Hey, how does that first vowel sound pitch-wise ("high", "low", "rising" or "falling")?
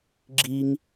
high